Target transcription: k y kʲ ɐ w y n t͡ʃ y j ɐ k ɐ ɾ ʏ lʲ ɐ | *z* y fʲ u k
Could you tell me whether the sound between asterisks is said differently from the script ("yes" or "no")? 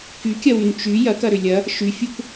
yes